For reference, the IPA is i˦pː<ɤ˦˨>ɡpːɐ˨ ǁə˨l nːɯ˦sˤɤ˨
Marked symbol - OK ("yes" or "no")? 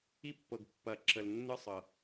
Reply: no